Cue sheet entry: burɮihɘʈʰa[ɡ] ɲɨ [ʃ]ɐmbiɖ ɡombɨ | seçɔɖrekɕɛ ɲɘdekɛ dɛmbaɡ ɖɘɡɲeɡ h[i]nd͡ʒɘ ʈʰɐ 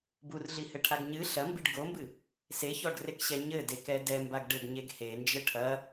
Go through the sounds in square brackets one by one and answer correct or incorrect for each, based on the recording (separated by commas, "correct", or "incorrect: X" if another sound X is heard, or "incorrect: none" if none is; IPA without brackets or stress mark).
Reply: correct, incorrect: ɬ, incorrect: e